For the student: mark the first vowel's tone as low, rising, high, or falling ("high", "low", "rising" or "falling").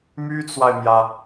high